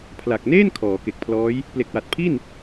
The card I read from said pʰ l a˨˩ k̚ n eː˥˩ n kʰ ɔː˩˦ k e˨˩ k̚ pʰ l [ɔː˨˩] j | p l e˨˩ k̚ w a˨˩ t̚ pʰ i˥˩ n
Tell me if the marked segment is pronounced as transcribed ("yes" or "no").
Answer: no